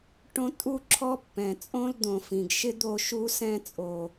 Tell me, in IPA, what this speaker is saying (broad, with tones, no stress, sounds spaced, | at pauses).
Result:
ʈ õ˦ tʼ u˦ ǁʰ ɔ˦ pː ɛ̃˨ t͡sʼ õ˦ l d̪ õ˨ f ĩ˨ ɡ ʃ ɪ˦ d̪ o˦˨ ʃ u˦ s ɛ̃˦ t͡sʼ o˨